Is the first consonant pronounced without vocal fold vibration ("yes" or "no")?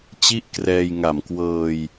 yes